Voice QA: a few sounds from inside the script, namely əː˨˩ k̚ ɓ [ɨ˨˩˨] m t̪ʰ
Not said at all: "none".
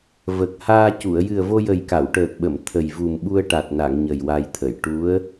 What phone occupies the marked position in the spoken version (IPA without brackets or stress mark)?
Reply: ə˨˩˨